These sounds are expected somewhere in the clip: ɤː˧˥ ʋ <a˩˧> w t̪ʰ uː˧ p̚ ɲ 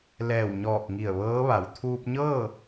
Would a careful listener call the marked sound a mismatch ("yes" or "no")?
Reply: no